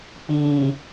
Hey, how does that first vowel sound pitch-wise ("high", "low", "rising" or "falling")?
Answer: low